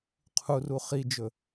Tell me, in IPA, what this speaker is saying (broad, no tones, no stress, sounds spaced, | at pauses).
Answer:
qʰ u r u χ i d͡ʒ ɵ